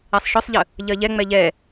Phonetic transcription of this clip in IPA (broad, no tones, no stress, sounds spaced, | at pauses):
ɛ sˤ ʃ œ sˤ ʎ ə | ʎ ɜ ʎ ɛ ŋ͡m ɛ ʎ ɛ